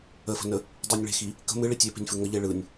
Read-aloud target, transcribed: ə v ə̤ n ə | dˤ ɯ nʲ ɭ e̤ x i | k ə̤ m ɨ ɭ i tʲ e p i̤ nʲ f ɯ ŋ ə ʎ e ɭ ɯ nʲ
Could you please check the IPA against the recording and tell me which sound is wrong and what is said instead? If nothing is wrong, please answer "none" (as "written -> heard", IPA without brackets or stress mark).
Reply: v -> f